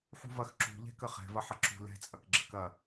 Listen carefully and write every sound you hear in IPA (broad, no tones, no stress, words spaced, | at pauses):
ħṳvɐx ǁṳʎɛ̤kə χɛ̤vɐħɐ ǁṳ lɛ̤t͡sʼɐk ɡ͡ǁəkɐ